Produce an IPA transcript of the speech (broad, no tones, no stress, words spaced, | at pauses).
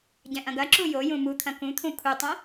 ɟɛ̃ʔɐ̃ɡɐ ǁujojũ mut̪ʰɐ̃ kũt̪ʰũ kʰutˤõ